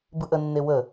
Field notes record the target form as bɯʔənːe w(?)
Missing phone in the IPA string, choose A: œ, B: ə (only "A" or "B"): B